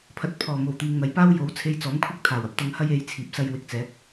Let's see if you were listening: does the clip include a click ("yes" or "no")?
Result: no